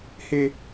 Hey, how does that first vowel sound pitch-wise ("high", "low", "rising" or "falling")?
high